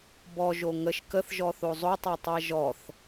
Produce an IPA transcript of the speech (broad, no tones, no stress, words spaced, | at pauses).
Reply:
bɔʒo ŋəʃ kəθʒɔθo zˤotˤætˤæ ʒɔθ